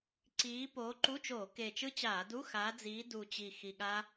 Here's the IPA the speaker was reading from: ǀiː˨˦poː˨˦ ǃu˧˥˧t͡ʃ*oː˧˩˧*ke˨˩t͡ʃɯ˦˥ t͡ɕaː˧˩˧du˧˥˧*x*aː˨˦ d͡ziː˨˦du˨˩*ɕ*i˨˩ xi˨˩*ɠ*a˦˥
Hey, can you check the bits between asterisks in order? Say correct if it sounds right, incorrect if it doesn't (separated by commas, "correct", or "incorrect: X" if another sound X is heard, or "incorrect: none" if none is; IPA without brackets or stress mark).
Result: correct, correct, incorrect: t͡ɕ, correct